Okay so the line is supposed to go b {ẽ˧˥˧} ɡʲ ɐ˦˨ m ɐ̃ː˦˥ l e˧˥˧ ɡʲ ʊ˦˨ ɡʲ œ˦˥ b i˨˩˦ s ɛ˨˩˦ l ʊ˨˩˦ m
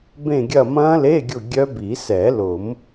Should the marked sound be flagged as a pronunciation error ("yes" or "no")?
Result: yes